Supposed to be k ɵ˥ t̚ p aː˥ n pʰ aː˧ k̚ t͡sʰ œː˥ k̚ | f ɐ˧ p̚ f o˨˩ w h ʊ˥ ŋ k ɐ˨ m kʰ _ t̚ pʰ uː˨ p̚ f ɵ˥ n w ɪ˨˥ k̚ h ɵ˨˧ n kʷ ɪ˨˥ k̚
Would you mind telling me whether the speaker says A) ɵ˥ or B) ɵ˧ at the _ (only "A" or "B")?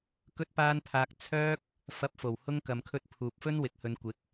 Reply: B